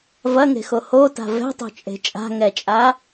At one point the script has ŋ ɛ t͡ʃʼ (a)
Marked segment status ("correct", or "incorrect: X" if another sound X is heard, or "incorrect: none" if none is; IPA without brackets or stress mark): correct